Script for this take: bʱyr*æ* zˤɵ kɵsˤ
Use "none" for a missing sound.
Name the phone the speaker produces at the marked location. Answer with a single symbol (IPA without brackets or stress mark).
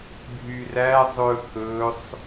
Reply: æ